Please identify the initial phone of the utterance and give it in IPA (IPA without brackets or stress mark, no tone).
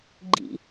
ɡ͡ǃ